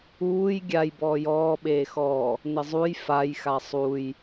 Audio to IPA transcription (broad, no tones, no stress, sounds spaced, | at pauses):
uː j ɡʲ a j b ɔː j ɔː ɓ eː x ɔː | n ɪ zˤ u j f a j x a sˤ u j